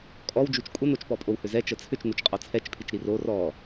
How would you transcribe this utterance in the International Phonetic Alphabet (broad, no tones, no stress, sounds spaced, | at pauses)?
kʼ ɔ w d͡ʒ u t͡ʃ kʷʼ ə n o t͡ʃ p ɔ pʼ o w h ʏ z ɛ t͡ʃ ə t͡sʰ ʏ t͡ʃ n u t͡ʃ qʼ ɔ t͡sʰ ɛ t͡ʃ pʰ i t͡ʃ ɾ i r o r ɔ